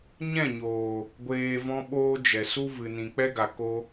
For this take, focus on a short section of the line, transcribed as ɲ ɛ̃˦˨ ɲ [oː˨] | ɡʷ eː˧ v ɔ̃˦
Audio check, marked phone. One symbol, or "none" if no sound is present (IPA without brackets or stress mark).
oː˨